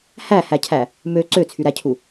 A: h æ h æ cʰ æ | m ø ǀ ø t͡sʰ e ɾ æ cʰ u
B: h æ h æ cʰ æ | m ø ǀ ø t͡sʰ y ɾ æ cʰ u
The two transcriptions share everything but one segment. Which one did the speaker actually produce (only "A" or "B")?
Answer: B